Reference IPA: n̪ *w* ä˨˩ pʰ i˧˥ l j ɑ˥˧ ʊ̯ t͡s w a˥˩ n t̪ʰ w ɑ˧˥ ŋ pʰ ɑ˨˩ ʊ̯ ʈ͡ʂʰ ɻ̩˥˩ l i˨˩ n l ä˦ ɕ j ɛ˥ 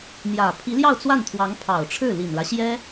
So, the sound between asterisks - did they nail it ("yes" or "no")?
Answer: no